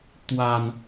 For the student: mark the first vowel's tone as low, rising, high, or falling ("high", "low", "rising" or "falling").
low